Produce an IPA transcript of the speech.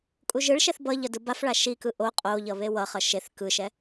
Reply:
kʼuʒɯɭʃɛθ bʌ ʎʌdɯbafɭa ʃikɯ ʔo qʼoʎʌ βewʌχʌ ʃeθ kɯʃɛ

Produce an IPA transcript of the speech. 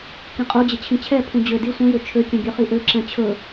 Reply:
kĩqʼud͡ʑɪ t͡ɕʰĩt͡ɕʰɛpʰũ d͡ʑø di sʷɛ̃jø t͡ʃʰøkʲɛ̃ ɡʲøχiʔøǁɛ̃ t͡ɕʰɵ

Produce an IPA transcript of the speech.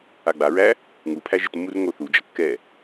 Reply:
aɡ͡baɹæ | ŋupʰæʒ ɪtmːur ŋoθu d͡ʒʌkːɛ

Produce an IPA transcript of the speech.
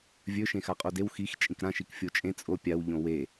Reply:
vʲɵ ʃẽxaqʼodew xix t͡ʃʼĩkɾã ʃikfʲot͡ʃʼẽ t͡sʼo pʲaw ʎõwe

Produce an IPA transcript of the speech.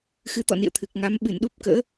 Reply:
xɨ˨˦t̪ɔ̰˧˨nḭ˧˨ə̯ t̪ʰɨ˨˩k̚ŋa˨˦m ɓɨ˧˩nɗu˦˥p̚kə̰ː˧˥

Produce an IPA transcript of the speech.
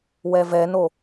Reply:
wɛvɛno

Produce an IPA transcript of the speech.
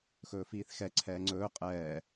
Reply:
xɵːfiːθxɛ ǀʰɛːŋ͡ǀɵː qʼɛː

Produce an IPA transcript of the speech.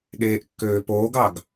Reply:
ɠeːʔkːøːpoːɡɑɡ

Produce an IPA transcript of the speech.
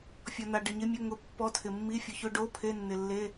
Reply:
fʲɔ˨na˨ ɖɪ˨ɲɪ˧˥˧mʲʊ˧˥˧ ŋʊ˧˥˧pːɔ˧˥˧tʰɪ˨mːi˧˥˧ fʲʊ˨çʊ˧˥˧ɖo˧˥˧ pʰe˧˥˧nːɪ˨lːe˧˥˧

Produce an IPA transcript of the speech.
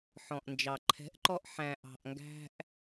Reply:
ħɔ̃˨ʔnd͡ʒɑ˨ ǃʰɛ̤˨˦ʔǃɔ˧ʔ ħæ̃˨ʔɑ̤˨ʔŋɡæ̤˧ʔ

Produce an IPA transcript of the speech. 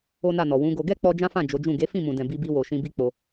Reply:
o˦na˦˨nɔ˨ wũ˨˦ɡo˧ ɡɛ˦k͡pɔ˧ d͡ʒã˦fã˦˨ d͡ʒo˨˦d͡ʒũ˦˨ ɡe˨˦fĩ˦˨mũ˨dɛ̃˨ bi˧bi˧wo˨ ʃĩ˧bi˦k͡po˧

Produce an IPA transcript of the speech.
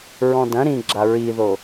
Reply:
ɹɔ̃dɐ̃ ɾĩɡ͡ǁa ɹiðo

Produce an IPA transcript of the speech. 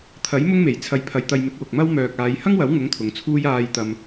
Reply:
t̪ʰɐ˨˥j mʊ˥ŋme˨˩j t͡sʰɐ˨˧jpʰɐ˨j t̪ɐ˧jmɪ˨˥k̚wʊ˨k̚mɐ˥w mœː˨k̚aː˨˧j hɐ˥ŋwɐ˨˥wŋʊ˨˥ŋ t̪ʰʊ˨˧ŋt͡sʰuː˥j aː˧j t̪ɐ˧m

